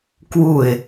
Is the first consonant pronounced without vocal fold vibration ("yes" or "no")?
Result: yes